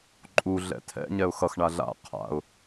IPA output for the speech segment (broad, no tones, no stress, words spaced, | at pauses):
ǃʼu ɮɛ̰tʰɛ̰ ɲɛʊ̯xʌx ɳaɮa̰ qʰa̰ʊ̯